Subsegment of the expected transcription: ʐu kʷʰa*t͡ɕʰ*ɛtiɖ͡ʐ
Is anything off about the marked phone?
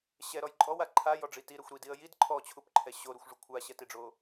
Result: yes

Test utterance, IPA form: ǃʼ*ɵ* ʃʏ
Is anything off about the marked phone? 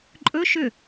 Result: no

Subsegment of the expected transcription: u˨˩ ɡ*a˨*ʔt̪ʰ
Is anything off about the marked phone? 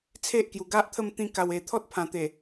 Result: yes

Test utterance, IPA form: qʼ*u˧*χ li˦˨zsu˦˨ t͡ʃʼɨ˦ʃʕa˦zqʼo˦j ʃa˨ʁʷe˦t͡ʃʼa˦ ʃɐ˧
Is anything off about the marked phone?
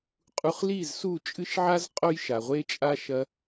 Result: no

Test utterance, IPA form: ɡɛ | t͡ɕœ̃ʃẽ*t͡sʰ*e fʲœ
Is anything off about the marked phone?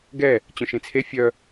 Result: no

